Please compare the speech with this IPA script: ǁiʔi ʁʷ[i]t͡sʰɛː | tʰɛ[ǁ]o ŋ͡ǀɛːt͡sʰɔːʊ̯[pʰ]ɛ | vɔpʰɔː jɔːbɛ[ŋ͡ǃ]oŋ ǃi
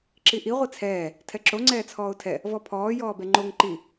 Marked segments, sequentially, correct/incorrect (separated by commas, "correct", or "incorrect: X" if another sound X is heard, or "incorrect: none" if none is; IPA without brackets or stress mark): correct, correct, incorrect: tʰ, correct